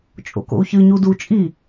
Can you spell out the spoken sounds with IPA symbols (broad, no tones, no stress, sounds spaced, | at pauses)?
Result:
t͡ʃʼ o̰ k o̰ u̯ ç ɨ ɲ u d u t͡ʃʼ i